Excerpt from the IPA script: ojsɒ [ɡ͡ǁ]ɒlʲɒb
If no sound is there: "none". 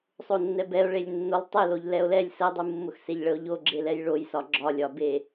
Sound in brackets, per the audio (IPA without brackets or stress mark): ɡ͡ǁ